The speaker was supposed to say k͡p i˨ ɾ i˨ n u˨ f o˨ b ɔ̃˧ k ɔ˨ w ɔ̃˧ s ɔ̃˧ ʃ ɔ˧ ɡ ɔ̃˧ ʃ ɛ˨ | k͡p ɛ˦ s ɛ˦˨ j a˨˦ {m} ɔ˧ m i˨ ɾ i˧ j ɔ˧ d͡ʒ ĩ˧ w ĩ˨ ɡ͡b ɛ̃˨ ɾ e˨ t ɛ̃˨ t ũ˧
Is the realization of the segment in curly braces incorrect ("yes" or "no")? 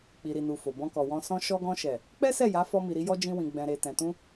yes